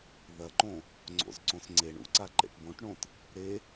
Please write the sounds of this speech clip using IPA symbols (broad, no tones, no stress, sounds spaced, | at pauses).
ð ɐ ǃ õ | ŋ͡ǀ o̰ z ǀ õ s ŋ͡ǀ e ɳ ṵ ǀ a ǃ ḛ ʈ b õ ʈ ɳ õ t | ɾ e